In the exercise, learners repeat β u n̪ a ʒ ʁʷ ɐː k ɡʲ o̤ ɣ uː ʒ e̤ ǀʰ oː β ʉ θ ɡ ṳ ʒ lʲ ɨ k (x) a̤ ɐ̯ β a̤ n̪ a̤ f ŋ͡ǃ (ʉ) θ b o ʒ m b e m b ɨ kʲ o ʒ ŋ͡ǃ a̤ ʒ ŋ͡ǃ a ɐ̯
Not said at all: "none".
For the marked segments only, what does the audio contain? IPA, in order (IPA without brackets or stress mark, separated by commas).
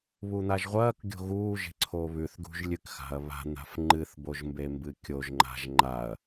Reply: x, ɨ